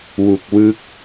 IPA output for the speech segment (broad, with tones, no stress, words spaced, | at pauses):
wu˨˩k̚wɯ˦˥k̚